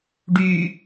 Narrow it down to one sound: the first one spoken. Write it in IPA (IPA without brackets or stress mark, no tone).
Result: ɖ